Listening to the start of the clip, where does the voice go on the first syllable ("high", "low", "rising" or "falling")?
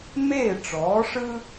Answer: falling